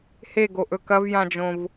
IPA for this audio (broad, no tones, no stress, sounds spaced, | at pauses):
h e ɡ o ʔ ɵ k ɐ v j ã d͡ʒ õ v